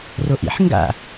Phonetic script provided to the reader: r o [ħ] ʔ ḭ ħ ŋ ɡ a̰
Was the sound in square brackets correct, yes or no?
no